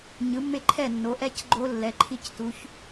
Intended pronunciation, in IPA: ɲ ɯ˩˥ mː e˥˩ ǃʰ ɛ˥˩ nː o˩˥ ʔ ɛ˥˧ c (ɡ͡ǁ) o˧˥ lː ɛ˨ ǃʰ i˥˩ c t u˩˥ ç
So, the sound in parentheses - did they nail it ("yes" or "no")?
no